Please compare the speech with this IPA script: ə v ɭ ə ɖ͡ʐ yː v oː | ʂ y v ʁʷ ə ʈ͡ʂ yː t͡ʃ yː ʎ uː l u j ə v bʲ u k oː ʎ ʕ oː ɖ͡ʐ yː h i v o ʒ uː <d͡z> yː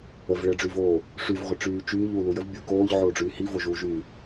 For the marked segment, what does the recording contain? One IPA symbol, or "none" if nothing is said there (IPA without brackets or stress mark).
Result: ʒ